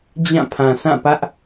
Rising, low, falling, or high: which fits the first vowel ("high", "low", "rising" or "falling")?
falling